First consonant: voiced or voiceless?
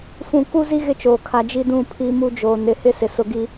voiceless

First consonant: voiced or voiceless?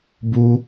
voiced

